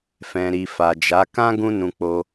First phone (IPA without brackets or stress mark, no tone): f